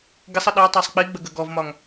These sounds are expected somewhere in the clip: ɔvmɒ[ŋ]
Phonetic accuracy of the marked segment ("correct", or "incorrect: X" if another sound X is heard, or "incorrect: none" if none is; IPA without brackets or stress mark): correct